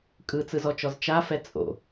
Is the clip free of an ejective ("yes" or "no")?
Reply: no